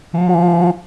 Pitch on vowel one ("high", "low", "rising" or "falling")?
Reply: high